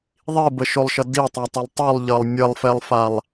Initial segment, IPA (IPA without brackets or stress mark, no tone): ðˤ